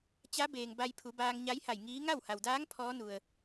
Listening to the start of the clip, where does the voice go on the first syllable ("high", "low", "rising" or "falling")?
rising